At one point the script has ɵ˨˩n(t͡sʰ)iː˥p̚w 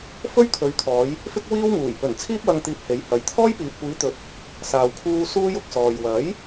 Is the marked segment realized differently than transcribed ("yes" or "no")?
no